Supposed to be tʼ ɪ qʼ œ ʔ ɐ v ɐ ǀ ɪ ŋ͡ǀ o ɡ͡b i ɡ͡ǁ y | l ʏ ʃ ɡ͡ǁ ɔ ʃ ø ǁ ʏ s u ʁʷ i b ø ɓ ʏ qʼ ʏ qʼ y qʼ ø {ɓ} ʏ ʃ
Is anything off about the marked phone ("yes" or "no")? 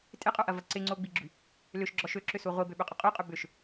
yes